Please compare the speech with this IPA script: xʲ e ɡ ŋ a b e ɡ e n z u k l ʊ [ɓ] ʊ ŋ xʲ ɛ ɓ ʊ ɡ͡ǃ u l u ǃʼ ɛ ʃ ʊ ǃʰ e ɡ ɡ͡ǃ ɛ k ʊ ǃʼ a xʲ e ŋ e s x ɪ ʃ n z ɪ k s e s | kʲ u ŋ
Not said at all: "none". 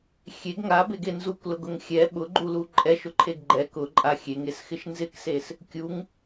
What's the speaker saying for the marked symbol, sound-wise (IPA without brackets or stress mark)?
ɡ